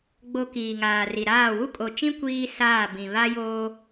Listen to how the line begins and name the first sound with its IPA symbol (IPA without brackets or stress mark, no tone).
ɡ͡b